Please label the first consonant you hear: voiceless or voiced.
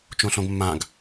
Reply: voiceless